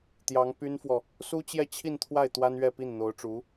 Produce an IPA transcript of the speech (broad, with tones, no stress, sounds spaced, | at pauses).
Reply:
t̪ j ɑ˧˥ ŋ p y˥ n f w ɔ˨ | s u˥ t͡ɕ j ɛ˥˧ t͡ɕʰ i˥˧ n t̪ʰ w a˥˩ ɪ̯ t̪ w a˥ n ɥ ɛ˥˧ p i˥˩ n n̪ o˧˥ ʊ̯ ʈ͡ʂ u˧˥